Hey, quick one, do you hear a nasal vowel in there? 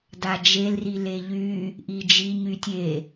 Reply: no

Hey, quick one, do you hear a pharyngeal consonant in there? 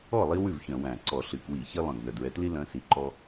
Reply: no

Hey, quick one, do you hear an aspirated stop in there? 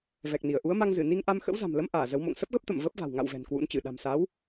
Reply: no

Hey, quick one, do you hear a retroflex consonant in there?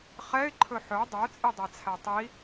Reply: no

